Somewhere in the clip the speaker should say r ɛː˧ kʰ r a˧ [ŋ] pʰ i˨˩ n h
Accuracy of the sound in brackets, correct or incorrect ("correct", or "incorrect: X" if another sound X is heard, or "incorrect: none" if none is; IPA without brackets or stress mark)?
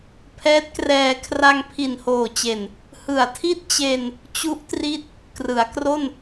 correct